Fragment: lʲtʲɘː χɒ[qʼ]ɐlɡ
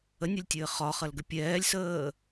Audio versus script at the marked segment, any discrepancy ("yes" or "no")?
yes